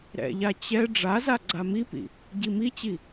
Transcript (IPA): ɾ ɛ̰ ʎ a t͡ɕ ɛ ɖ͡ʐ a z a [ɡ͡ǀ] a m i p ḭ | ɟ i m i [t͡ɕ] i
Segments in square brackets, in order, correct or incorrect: correct, correct

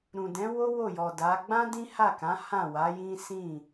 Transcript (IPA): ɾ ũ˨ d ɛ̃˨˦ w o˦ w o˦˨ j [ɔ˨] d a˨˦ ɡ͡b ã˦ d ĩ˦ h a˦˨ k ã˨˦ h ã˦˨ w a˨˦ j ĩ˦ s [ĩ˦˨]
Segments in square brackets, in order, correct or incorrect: correct, correct

